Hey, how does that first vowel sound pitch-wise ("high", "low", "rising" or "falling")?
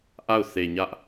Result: falling